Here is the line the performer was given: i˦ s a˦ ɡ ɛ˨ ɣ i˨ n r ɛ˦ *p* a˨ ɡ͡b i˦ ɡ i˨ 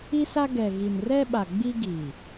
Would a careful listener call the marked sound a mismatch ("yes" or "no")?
yes